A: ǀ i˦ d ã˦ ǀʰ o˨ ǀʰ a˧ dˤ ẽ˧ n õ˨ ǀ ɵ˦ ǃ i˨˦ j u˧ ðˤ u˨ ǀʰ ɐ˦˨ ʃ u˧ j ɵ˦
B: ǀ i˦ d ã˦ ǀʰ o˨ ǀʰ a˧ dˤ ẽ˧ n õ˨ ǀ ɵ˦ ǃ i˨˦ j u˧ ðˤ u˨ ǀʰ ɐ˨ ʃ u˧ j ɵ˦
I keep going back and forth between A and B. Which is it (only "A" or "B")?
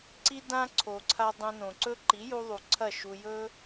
A